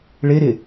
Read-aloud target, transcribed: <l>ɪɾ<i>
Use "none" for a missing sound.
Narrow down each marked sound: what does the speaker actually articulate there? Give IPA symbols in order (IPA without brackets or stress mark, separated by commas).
ɭ, ɪ